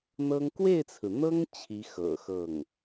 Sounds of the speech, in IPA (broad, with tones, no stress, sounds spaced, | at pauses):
n̪ ɤ˥ ŋ k w e˥˩ ɪ̯ t͡sʰ ɹ̩˩ n̪ ɤ˥ ŋ t͡ɕʰ i˧˥ x ɤ̰˨˩ x ɤ˥˩ ŋ